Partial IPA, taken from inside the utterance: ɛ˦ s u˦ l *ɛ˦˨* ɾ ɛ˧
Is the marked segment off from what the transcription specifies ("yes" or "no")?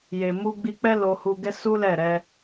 no